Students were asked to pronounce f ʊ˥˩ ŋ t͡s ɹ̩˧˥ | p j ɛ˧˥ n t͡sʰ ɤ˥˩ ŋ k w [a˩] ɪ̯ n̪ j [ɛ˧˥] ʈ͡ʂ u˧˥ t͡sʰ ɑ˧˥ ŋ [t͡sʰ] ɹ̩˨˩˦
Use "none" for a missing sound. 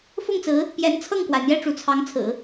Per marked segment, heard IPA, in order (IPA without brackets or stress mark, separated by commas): a˩, ɛ˥˩, t͡sʰ